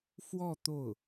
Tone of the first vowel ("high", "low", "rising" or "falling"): falling